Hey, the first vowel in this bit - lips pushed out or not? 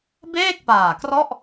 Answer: no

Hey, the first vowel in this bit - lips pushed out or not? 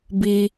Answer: no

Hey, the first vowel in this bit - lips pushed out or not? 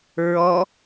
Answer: yes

